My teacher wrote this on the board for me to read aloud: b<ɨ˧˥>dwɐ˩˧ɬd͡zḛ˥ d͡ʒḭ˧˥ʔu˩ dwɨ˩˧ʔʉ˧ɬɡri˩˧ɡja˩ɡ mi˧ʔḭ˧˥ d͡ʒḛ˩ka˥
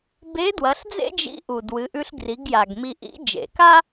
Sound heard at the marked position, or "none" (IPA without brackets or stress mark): e˧˥